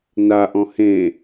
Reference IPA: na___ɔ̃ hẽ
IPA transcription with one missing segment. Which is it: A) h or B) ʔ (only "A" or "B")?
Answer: B